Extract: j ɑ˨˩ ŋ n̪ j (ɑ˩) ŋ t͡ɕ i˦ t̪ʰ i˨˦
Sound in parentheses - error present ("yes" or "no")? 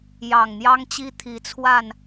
yes